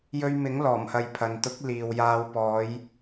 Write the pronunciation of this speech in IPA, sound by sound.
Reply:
jɵ˧ɥmɪ˨˥ŋlɔː˨˩mhɐ˨j pʰɐ˨n t̪ʊ˨˥k̚ liː˨wjaː˧w pɔː˨˧j

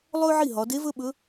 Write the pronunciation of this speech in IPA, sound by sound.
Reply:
lˠɵ˥ʕi˥˩ɦɒ˩˧de˧˥ vɵ˥ɓɵ˧˥

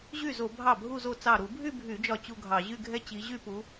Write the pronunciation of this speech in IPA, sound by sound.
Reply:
ʑy˥˩zo˧˩˧ bʱɑ˥˩bʱu˥˧zo˥˩ t͡sɑ˧˩ɾu˧˩˧bʱy˥˧bʱy˧˩˧ d͡ʒɒ˥˩t͡ɕu˥˧ɡʱɑ˧˩˧ ʑy˥˧ɡʱɛ˥˧t͡ɕi˨˦ʑy˥˧ pu˨˦

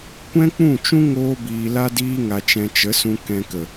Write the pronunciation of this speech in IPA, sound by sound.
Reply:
kʷɛ̃˦k͡pũ˦˨t͡ʃũ˦ ŋoː˦biː˧la˦diː˦ ŋa˧t͡ʃɛ̃˧ t͡ʃə˨˦sũ˧ kɛ̃˧kə˨

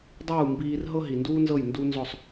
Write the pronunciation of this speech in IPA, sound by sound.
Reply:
dˤuː˥˩ mbiː˧r ɦɤ˥ɦi˩nduː˥nzɤ˥˩j ndu˥ nzɔ˥˩sˤ

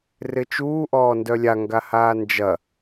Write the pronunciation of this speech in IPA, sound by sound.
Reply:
rɪt͡ʃuː ʔɔːndœlʲa ŋɡahaːnd͡ʒɐ

